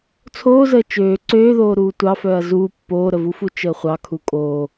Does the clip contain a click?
yes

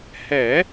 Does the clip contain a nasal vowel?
no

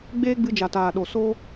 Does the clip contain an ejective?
no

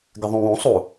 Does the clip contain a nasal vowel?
yes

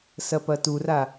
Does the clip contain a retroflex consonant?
no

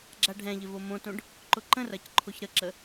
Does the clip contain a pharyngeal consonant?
no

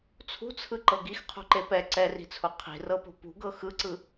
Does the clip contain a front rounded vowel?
no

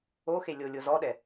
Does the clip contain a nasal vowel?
no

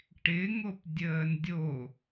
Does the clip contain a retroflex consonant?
yes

